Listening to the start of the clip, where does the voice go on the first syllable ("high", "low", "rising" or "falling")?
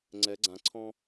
rising